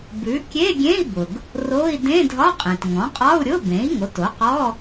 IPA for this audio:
bʉ˩˥ kʲe˧˥˧ɡʲẽ˧˥˧i̯bʊ˩ɡ | ro˧˥˧i̯ dẽ˧˥˧dʱɒ˧˥˧qʼẽ˩t ŋɔ̃˩˥qʼɒ˧˥˧u̯ɾʲʊ˧˥˧bẽ˩˥i̯ ŋo˩˥to˩˥qɔ˧˥˧

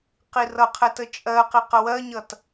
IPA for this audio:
qirʌqʰɛ tət͡ʃʼɜqi qəwɜɲʌt

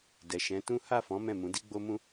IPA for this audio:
dɛ˨ ʃɛ̃˨˦tũ˦ ha˦˨fɔ̃˨˦ mɛ̃˦˨ mũ˨˦di˦ ɡ͡bo˦mũ˦

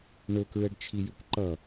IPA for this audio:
ɳɵkɹɛɖ t͡ʃʰijɨkʷǃʌ

